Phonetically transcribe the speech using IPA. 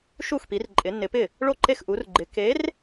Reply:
ʃ u˥˩ x p i˨˦ r ǃʼ ɪ˨˦ nː ɪ˨˦ p ɪ˥˩ | ɭ o˥˩ ǃ e˥˩ x ʔ u˨˦ r ɡ͡ǃ ɪ˨˦ k e˨˦ r

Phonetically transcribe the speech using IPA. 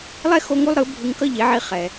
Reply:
lˠ ɛ˦ x o˦ ŋ u˦ lˠ ɾ ɯ˨˦ bʱ ɯ˧ ŋ k ʌ˦ ʎ e˨˦ ʕ i˧ χ ɛ˨

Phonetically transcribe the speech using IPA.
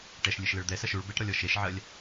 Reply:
ʈ ɛ ʃ lʲ ɨ ʃ l ɘ ɭ d̪ ɛ s ɐ ʃ u ɭ b e ʈ ɾ ɔ lʲ ɔ ʃ e ʃ ʕ ɐ lʲ

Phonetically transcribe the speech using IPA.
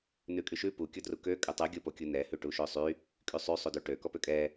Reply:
n ʉ kʼ y ʃ ʉ p u kʲ ɔ d r u k ø kʼ ø tˤ ʉ ɡʲ o p o kʲ u n ɛ h ʉ ʈ u ʃ ø sˤ y | kʼ y sˤ y sˤ u d ʉ ʈ ø k ɔ p ø kʼ ɛ

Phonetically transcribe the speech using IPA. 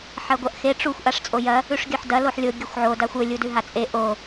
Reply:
ħ ɐ ɡʷ ɐ ʔ x e ʈ͡ʂ u xʷ ʔ a ʂ t͡sʼ o j ɐ | ʉ ʂ ɡʲ ɵ ħ d ɐ l o ħ lʲ o ɡʲ ɨ xʷ ʕ o d a xʷ ɵ lʲ u d ʉ ɦ a t͡sʼ e ʔ o

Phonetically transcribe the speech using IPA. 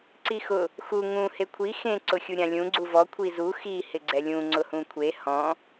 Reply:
ǀ i x ʊ | x u ŋ ũ h e kʷʰ i x ẽ ǀ ʊ xʲ u ɾʲ ã lʲ ũ ɡ͡ǀ u v ɔ kʷʰ i z u x i h ɪ ɡ͡ǀ ɛ lʲ ũ ŋ͡ǀ ʊ h ũ kʷʰ e h ɔ̃

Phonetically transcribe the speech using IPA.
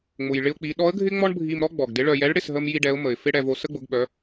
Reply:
ŋ͡m ʊ˩ j ɭ ɪ˧ ʊ̯ k͡p i˩˧ ɗ ɔ˧˥ ə̯ ɡʱ ɪ˥ ŋ͡m ɔ˥ ɳ bʱ i˧ m ɾ ɔ˥ ɡ͡b ɔ˩ ɡ d ɪ˧˥ ɭ œ˧ j ɛ˧˥ ɭ ɽ ɪ˧ s ɦ ə˥ m j i˥ ɖ ɛ˧˥ ʊ̯ m ə˩ ɪ̯ f ɪ˥ ɽ ɛ˧ v o˧ s ə˥ ɡ͡b ʊ˩˧ ɡ ɓ œ˩˧

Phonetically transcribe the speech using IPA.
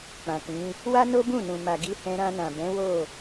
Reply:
k͡p ã˨ k ĩ˨˦ | w a˦ n o˦ b ũ˦˨ n ũ˨ m a˨ ɡ i˧ h ɛ̃˧ ɾ ã˧ n ã˨ b ɛ̃˨˦ w o˦˨

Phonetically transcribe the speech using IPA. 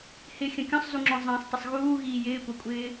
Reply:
h ɪ xʲ ə̃ kʲ ɔ̃ sˤ z u ŋ͡ǁ ɔ̃ zˤ ə̃ː sˤ tˤ ə sˤ ɣ uː ɣ iː j ɪː kʷ ʌ kʷʼ ɪː

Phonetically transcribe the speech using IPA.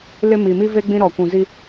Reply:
l ɪ˦ m i˨ m i˦ v e˦ ɡ͡b ĩ˦ ɾ ɔ˨ kʷ ũ˨ z i˦

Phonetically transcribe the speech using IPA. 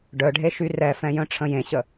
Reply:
ɖ œ ɖʱ e ʃ y r ɛ f ɛ̃ j œ̃ ʈ͡ʂʰ ə̃ j ẽ ɕ ə

